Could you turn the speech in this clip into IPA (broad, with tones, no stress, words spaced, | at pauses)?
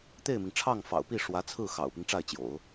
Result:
t̪e˥˩ɪ̯mi˩ŋ ʈ͡ʂʰɑ˥˩ŋfɑ̰˨˩ʊ̯pi˥˩ ʂwä˧˥t͡sʰɹ̩˥˩ xɑ̰˨˩ʊ̯pi˦ŋʈ͡ʂa˥˩ɪ̯ t͡ɕjo̰˨˩˦ʊ̯